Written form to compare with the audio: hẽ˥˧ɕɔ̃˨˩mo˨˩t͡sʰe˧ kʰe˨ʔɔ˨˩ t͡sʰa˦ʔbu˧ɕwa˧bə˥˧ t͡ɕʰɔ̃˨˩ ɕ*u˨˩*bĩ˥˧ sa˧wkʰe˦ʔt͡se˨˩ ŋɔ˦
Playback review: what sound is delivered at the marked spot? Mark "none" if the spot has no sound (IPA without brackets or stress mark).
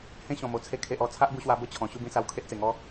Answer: u˥˧